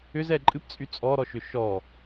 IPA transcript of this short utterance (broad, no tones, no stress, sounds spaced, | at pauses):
ʏ z ɛ ǃʼ ɨ p t͡sʼ y t͡sʼ ɔ ɾ ɔ ʃ ʏ ʃ ɔ